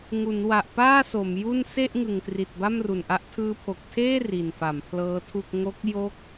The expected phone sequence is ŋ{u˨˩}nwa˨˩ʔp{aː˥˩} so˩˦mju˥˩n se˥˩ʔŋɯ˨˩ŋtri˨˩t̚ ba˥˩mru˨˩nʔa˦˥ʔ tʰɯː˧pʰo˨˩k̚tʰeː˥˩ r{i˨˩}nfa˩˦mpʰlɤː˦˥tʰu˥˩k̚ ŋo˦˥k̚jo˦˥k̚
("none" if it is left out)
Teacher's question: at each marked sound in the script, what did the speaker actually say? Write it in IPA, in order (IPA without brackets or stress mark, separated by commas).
u˩˦, aː˥˩, i˨˩